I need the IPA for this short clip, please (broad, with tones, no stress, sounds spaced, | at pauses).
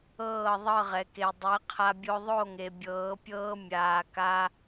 ɤː˦˨ ðˤ ɤ˦˨ ʁ ɛ˨ k e˨ dˤ ɛ˨˦ qʰ a˧ bʲ o˧ ðˤ o˦˨ ŋ e˨ bʲ ɤː˨˦ pʲ ɤː˦ mʲ aː˧ k a˦